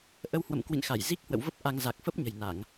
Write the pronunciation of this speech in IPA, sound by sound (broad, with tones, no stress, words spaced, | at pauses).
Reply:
ʔə˧whwə̰˧˨mkwḭ˧˨nxa˧˩j zi˦˥k̚hwə̰˧˨wvə˦˥p̚ ʔa˧ŋ za˨˩k̚fə˦˥p̚ ɲə̤˨˩jna˧˩˨ŋ